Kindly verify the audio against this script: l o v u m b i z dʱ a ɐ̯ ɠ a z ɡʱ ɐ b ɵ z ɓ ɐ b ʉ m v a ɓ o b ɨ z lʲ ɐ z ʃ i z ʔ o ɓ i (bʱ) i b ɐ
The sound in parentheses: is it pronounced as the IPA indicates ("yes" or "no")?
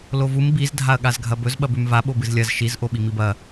no